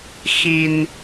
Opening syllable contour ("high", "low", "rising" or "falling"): low